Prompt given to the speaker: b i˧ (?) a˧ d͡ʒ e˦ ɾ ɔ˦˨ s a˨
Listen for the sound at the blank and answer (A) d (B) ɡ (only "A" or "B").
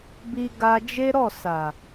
B